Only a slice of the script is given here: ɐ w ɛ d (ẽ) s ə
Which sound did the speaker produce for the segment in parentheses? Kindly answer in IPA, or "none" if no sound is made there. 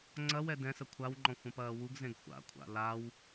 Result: ɛ̃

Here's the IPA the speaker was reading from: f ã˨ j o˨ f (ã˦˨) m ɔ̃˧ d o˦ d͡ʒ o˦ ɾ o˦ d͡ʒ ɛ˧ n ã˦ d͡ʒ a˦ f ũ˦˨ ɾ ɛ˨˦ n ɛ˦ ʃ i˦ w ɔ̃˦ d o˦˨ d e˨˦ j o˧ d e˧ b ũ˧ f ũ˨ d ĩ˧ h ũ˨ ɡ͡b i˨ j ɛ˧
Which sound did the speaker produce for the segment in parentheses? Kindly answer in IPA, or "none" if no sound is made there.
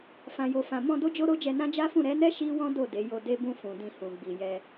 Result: ã˨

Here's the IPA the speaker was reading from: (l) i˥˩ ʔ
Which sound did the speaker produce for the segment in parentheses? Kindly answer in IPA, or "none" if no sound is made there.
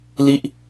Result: l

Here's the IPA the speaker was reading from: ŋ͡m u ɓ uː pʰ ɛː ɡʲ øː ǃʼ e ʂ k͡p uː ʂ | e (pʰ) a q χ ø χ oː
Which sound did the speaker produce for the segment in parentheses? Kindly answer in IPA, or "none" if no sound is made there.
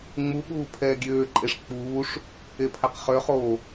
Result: pʰ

